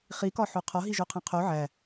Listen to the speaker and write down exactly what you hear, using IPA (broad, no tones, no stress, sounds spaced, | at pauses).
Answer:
χ i k ɒ ħ o qʰ ɒ ɦ i ʒ o qʰ æ̃ qʰ o ʕ æ